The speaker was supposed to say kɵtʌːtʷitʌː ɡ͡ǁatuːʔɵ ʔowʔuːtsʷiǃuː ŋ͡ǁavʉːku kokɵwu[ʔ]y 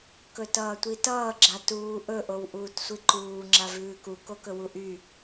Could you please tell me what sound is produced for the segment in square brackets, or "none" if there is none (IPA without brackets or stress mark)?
ʔ